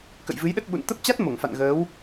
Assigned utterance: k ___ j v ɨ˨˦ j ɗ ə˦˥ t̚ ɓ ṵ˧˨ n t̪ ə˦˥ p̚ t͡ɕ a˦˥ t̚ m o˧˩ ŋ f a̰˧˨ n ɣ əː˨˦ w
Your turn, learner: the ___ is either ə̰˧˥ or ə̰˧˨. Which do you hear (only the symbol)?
ə̰˧˨